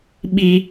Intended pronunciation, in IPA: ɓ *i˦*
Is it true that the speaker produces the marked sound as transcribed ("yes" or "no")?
yes